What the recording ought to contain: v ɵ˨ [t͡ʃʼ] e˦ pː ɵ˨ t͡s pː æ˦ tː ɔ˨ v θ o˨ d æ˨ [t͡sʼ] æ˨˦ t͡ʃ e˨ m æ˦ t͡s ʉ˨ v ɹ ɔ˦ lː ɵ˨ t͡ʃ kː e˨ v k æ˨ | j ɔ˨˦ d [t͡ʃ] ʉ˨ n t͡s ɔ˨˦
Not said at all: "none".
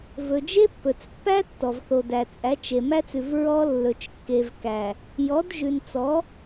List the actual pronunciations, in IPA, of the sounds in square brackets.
d͡ʒ, t͡sʼ, ʒ

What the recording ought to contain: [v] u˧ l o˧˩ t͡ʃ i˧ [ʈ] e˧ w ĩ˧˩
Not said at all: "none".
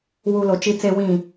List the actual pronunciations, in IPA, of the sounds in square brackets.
w, t͡s

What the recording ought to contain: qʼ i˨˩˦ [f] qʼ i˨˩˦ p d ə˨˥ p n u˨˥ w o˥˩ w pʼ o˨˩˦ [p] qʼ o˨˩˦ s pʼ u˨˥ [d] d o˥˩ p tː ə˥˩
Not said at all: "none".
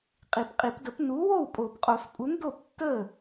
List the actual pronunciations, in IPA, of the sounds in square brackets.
p, p, n

